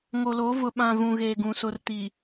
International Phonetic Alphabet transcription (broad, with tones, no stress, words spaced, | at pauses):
ŋo˨lo˨˦ vʊ˨ɓã˨ vũ˨ɣeː˨ɡũ˨ sʊ˨rti˨